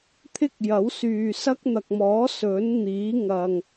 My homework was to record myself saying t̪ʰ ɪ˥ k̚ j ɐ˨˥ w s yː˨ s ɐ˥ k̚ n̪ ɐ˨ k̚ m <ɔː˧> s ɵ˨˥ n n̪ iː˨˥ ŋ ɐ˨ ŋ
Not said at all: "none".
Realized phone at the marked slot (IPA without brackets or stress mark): ɔː˨˥